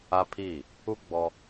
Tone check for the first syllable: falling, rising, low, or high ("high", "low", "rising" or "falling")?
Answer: high